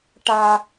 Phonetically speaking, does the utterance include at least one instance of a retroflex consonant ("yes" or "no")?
yes